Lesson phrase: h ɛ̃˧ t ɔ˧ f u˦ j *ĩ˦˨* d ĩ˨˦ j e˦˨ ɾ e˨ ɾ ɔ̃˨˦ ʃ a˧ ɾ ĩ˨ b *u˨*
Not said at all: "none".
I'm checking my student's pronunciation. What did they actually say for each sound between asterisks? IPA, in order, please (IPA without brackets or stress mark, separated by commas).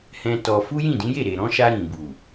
ĩ˦˨, u˨